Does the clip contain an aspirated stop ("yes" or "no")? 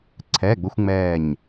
yes